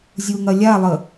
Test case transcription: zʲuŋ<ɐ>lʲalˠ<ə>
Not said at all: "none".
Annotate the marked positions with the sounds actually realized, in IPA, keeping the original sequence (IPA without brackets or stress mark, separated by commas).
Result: ɐ, ə